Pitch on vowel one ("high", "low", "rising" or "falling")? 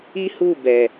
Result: high